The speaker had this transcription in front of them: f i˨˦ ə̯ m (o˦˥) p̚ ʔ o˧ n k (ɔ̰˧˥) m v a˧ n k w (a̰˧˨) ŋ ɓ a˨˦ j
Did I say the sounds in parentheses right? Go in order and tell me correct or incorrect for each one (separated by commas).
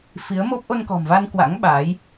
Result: correct, incorrect, incorrect